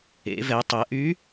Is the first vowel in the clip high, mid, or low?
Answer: mid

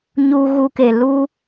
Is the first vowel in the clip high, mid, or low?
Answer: high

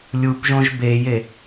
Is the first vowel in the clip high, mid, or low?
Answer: high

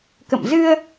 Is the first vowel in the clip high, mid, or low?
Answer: mid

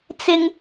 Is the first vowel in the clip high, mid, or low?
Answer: high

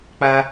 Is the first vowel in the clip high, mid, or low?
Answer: low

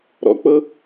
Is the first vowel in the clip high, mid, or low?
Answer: mid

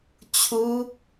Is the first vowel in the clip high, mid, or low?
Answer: high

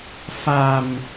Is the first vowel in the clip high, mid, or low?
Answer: low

